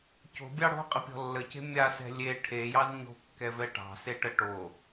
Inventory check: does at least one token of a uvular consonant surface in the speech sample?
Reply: yes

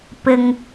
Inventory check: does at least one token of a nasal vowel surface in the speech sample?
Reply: no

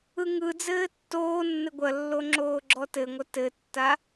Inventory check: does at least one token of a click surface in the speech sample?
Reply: yes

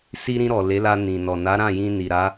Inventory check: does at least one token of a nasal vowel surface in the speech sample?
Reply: yes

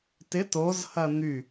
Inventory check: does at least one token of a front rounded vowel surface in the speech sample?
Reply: yes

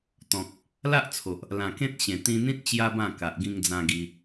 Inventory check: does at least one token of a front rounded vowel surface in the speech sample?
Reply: no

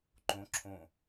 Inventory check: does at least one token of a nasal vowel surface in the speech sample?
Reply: yes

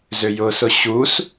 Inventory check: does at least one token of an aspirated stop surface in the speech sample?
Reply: no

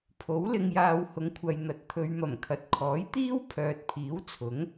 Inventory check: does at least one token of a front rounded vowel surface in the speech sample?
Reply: yes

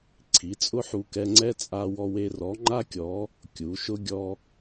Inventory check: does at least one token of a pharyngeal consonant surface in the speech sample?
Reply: yes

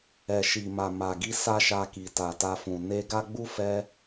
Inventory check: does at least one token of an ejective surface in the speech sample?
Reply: no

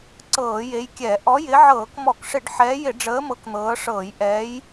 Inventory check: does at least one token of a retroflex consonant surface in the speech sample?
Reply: yes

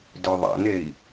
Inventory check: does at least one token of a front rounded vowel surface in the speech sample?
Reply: yes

